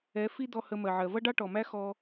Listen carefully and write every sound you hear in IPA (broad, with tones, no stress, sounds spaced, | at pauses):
ɛ˨˦ f i˦ d̪ ɔ˧ h ə˧ m ɜ˨ ʕ ɜ˨ v ʌ˦ ɖ ɑ˦ ʈ ɔ˨ m æ˦ x ɔ˦